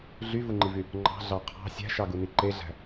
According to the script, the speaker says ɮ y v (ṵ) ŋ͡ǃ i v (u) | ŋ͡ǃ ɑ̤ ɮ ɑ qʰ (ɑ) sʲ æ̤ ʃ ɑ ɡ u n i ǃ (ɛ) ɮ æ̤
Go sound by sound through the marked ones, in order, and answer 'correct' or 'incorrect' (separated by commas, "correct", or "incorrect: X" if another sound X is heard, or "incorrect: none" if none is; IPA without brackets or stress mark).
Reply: incorrect: u, incorrect: y, incorrect: ɑ̤, incorrect: e